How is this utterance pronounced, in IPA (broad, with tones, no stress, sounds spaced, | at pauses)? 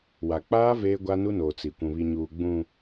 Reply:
w a˨ k͡p aː˦ v eː˦ ɡʷ a˦ n u˦ n oː˨ t͡s i˨ kʷ ũ˨ β i˨ ɲ uː˨ ɡ͡b ũ˨